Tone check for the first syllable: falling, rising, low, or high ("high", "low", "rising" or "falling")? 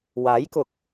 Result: rising